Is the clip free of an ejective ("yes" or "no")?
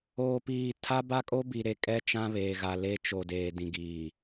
no